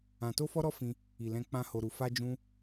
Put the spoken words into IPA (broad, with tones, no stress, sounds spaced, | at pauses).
ã˧ t o˦ f ɔ˦ ɾ ɔ˦ f ĩ˧ | i˨ l ɛ̃˧ k͡p ã˦ h o˧ ɾ u˧ f a˦ d͡ʒ ũ˦